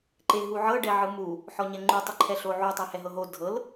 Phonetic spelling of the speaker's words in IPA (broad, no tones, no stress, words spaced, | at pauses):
ǃeɦuʕɤ ɖɛʕɯmu | ħɔɲɛŋ͡ǃu tˤeǃʰɛɬoʕu tˤahɛɦɤɦo dʱɤl